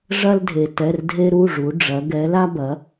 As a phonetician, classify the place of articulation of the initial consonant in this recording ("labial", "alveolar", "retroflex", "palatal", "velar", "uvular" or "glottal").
retroflex